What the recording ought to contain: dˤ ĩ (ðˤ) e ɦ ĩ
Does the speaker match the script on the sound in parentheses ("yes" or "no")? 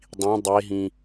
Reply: no